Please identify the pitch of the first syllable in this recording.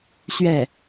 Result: falling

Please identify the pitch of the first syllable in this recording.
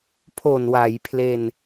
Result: low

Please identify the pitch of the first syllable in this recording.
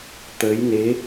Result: rising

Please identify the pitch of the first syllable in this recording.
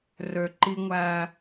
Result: low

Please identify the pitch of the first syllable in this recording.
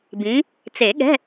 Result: rising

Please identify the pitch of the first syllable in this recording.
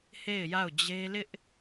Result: falling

